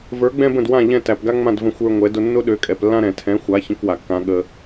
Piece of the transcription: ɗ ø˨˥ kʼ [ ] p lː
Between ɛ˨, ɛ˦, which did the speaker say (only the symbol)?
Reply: ɛ˨